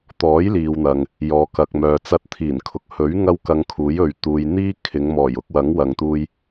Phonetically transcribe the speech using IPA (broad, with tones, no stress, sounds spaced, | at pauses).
t̪ ɔː˨˥ j l iː˨ w n̪ ɐ˨ ŋ | j ɔː˨ k ɐ˨ k̚ m œː˨ t͡s ɐ˧ t̚ t̪ʰ iː˨˩ n kʰ ʊ˨ k̚ h ɵ˨˥ ɥ ŋ ɐ˥ w k ɐ˧ ŋ kʰ uː˨˥ j ɵ˨ ɥ t̪ uː˨ j n̪ iː˥ kʰ ɪ˨˧ ŋ m ɔː˨˩ j ʊ˧ k̚ w ɐ˨˥ ŋ w ɐ˨ ŋ t̪ uː˧ j